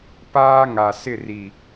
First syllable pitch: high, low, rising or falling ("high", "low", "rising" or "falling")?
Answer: high